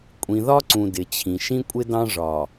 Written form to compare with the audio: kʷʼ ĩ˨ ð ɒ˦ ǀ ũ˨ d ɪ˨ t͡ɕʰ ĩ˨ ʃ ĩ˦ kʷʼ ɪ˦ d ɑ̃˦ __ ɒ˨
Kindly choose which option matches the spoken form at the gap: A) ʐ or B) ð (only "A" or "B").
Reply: A